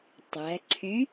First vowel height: low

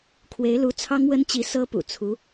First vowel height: mid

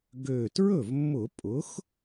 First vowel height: mid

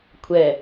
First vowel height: mid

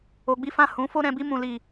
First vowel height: mid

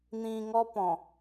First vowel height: high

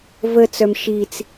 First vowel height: mid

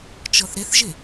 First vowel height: mid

